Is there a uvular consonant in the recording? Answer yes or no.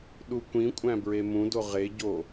yes